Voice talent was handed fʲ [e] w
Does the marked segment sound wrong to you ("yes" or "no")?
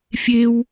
no